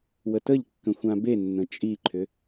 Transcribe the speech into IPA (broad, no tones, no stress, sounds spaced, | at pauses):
w ə t ə ʎ kː ə̃ xʷ ã b e nː ə̃ t͡ʃʼ i ǃʰ ʏ